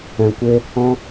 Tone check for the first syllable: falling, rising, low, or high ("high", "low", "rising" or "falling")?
low